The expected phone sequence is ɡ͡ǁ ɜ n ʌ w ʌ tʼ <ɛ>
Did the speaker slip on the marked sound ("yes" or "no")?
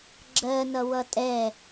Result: no